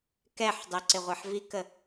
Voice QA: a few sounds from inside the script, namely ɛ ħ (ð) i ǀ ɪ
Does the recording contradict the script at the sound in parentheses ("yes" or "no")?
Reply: yes